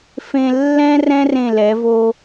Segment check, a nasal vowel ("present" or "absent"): present